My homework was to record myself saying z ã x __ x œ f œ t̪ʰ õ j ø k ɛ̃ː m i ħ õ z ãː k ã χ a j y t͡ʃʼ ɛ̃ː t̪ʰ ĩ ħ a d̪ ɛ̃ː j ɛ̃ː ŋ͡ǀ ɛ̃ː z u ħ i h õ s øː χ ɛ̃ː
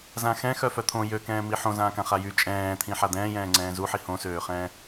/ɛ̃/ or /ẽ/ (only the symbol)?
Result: ɛ̃